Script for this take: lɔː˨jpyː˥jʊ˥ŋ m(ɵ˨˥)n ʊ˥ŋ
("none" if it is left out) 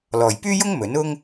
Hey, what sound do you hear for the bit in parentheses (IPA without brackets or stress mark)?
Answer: ɵ˨˥